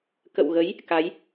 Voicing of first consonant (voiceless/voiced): voiceless